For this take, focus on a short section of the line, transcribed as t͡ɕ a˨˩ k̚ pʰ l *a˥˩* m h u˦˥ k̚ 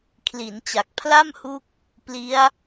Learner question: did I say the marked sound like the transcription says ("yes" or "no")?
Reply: yes